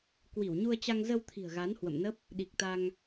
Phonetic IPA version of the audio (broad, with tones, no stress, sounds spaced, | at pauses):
k w i˧˩ w ɲ u˧ ə̯ t͡ɕ a˧ ŋ z ə˧ w t̪ʰ i̤˨˩ ə̯ ɣ a˨˦ n h w ə̰˧˨ m n ə˦˥ p̚ | ɗ i˨˩ k̚ t̪ a˧ ŋ